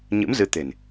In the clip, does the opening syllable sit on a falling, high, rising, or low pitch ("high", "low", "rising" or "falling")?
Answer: rising